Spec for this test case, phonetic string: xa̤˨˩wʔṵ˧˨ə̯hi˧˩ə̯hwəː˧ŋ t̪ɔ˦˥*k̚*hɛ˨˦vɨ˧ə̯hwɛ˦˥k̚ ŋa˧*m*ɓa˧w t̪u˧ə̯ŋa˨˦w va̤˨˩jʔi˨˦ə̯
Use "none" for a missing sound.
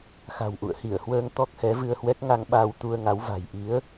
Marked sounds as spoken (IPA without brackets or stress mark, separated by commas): k̚, ŋ